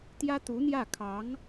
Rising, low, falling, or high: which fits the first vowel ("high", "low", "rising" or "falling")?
high